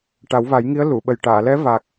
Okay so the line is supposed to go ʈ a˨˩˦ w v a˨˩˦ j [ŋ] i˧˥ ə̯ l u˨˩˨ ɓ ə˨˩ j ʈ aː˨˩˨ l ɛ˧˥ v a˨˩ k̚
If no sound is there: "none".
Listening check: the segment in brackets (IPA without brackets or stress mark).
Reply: ŋ